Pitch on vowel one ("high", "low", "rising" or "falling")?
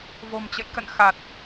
low